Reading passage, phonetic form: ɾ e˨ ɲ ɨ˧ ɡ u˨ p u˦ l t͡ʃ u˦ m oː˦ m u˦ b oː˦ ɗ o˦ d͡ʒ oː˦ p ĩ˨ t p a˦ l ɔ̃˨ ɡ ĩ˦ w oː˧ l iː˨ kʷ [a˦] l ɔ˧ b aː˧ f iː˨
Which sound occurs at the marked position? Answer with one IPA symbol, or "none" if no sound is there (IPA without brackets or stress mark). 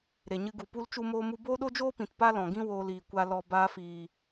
a˧